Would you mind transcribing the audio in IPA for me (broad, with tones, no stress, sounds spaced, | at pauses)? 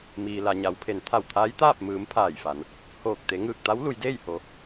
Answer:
m iː˩ l a˩ ɲ a˩˧ w pʰ e˩˧ n t̪ʰ a˧˩ w t̪ʰ aː˧˥ j t̪ aː˥˨ p̚ m ɯː˩˧ m pʰ aː˧˩ j f a˩˧ n | h oː˧˩ k̚ t̪ e˩˧ ŋ ɯː˧˩ k̚ t̪ a˧˥ w l u˩˧ j d eː˥˨ j h o˩˧